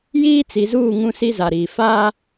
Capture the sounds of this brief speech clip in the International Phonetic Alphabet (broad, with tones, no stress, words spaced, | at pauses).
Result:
jiː˦t͡si˨zuː˦˨ ŋũ˦si˦za˨ɾiː˨ faː˦